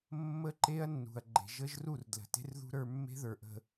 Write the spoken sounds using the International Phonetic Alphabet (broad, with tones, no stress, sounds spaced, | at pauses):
mː ə˦ ǃ e˦ ɐ̯ nː ṳ˨ ɐ̯ ɡ͡ǃ e̤˨ ʒ ə˦ ʒ r u˦˨ r d l ə̤˨ t e̤˦ r ð ṳ˦ ɾ ə˞˦ mː e̤˦ ð ə˞˨ ʔ ə̤˨